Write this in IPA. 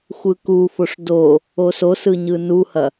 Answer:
xʷɯkufoʂ do | ososɯ ɲɯnuhɐ

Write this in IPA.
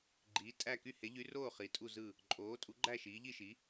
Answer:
ɡ͡ǃiː˩˥tʼæ˥˩ ky˥˩he˩˥ʎy˩˥roː˥˩ χi˩˥tʼu˥˩zɯ˥˩ | ǃʼoː˩˥tʼu˩˥ɡ͡ǃæ˥˩ ʃiː˩˥ʎi˥˩ʃi˩˥

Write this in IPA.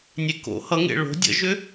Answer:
nʲeko̰ hʌŋḛ ɭo̤ dʲə̰ʒʏ

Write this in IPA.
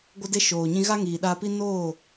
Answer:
ɡʷə˧de˧ ʃoː˨ ɲĩ˧ ɣa˦ŋiː˨ɗaː˧pi˦ noː˦˨

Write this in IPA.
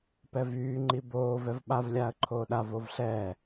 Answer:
pɛvyː ŋ͡ǃiboː vɛvɓav lʲaːə̯ǃʰoːɗa vovɬɛː

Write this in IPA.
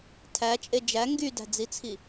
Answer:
tʰæt͡ʃʼe d͡ʒæ ŋɡydæ̤d͡zit͡sʰi

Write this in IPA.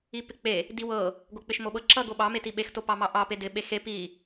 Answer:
ipɪk͡pe | diwɤ | ɡok͡pɪʃmoɓɤ ǁʌ ɡoɓɑ metiɓex topɑmɑʔɑ pedɪ ɓexe pi

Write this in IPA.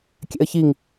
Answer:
kʲɛ̰ə̯çiŋ

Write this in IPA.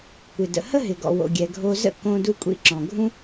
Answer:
kʷɪ˩də̰˩ hə˥ɦɪ˩ɡɔ̰˩ wo̰˩ɡʲɛ˩ɡʱo˧zə̰˥ kõ˧ du˧kʷʼḭ˧ǁɔ̃˩ɡʱũ˥

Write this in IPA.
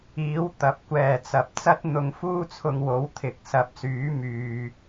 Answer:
iː˨˥w t̪ɐ˨˥p̚kʷɛː˨t͡sɐ˨˥p̚ t͡sɐ˥t̚n̪ʊ˨˧ŋfuː˥ t͡sʰʊ˧ŋwo˨˥w t̪ʰɪ˨˥k̚ sɐ˨˥p̚syː˨˥ myː˨

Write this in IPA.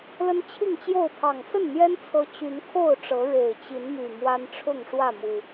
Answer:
lə˦nt͡ɕʰi˥˨ŋt͡ɕjo˥˨ʊ̯ pʰɑ˨˩ŋsə˥˨nn̪jɛ˦n t͡sʰɤ˦ t͡ɕy˨˦nkʰo˥˨ʊ̯ʈ͡ʂɤ˨˦ ɻe˨˩ɪ̯t͡ɕi˨˦nmy˨˩ mwa˦nʈ͡ʂʰʊ˥˨ŋʂwä˥˨mu˨˩

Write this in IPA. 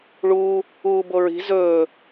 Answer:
ɭuː | uːboɹi̤ zɵː

